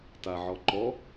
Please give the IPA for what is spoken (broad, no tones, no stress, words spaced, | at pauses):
taʕɔǃɔ